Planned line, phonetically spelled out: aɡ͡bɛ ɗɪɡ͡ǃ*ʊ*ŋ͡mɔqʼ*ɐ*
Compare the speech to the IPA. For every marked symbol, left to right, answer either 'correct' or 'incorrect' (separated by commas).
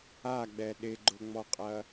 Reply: correct, correct